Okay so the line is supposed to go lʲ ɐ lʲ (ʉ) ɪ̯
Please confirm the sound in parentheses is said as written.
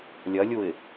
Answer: no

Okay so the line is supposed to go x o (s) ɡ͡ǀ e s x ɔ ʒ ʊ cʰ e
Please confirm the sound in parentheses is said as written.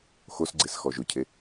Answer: yes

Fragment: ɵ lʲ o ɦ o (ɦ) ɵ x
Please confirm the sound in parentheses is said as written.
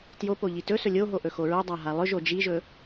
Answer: no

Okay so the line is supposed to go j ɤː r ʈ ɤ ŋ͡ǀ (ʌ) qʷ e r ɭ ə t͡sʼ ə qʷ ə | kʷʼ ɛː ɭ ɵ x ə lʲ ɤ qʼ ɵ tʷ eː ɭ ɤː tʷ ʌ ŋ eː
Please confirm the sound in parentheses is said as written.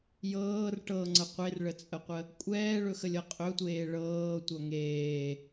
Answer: no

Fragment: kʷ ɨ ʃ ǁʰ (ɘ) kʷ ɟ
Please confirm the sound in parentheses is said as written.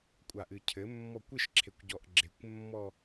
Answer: no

